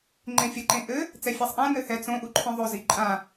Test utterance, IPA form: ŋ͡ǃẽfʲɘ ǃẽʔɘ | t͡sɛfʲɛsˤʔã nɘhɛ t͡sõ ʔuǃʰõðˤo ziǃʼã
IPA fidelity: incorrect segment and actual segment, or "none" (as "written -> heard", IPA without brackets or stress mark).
none